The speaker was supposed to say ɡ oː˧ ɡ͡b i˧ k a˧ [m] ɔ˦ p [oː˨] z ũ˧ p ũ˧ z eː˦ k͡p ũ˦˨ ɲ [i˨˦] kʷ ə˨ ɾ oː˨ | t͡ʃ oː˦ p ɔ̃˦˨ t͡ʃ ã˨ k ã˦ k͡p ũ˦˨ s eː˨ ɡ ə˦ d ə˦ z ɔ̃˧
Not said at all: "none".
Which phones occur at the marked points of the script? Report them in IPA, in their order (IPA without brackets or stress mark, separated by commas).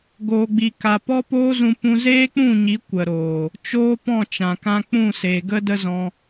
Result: p, oː˦, i˨˦